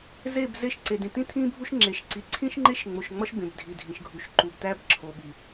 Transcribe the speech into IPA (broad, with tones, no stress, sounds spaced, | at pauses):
z e˦˨ b z e˦ ʃ ǀ e˨ d ĩ˨ t̪ ĩ˦ t̪ʰ ĩ˦ bʱ u˦ ʃ ŋ͡ǁ e˨ ʃ ǀ i˨ ǀʰ ĩ˦ ʃ ŋ͡ǃ e˦ ʃ ŋ͡m o˨ ʃ ŋ͡m ɒ˦ ʃ b ẽ˨ b dʱ i˨ dʱ ĩ˨ ʃ ɡʱ u˨ ʃ ǃ u˨ b t̪ æ˦ b ǁʰ o˨ ɓ i˨